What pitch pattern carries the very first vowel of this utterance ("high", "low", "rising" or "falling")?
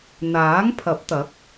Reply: rising